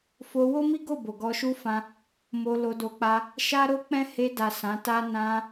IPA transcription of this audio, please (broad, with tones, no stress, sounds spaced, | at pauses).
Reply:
f o˧ w o˦ m i˦ ɡ o˦˨ b o˨ ɡ ɔ˧ ʃ u˦ f ã˧ | m o˧ l o˧ d o˧ k͡p a˧ | ʃ a˦ ɾ o˦ k͡p ɛ̃˦ h e˧ d a˨ s ã˨˦ t a˦ n ã˧